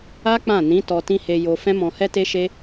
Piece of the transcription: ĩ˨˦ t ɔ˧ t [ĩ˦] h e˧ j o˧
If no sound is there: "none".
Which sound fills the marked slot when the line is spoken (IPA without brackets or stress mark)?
ĩ˦